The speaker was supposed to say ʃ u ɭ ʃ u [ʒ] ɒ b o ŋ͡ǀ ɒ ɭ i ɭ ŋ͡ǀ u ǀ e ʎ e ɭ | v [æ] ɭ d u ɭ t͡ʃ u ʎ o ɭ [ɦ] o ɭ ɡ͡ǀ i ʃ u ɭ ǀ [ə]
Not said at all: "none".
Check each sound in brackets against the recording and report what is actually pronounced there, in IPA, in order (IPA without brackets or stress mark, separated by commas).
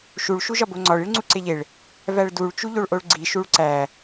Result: ʒ, æ, ʔ, æ